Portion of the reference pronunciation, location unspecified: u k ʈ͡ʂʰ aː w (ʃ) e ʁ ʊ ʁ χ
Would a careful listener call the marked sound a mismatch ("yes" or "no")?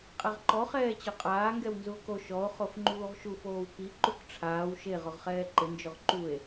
no